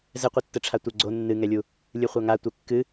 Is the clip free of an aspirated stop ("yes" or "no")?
no